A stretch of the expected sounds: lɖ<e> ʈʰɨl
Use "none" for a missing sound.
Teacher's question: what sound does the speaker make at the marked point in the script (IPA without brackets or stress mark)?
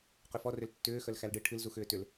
ɨ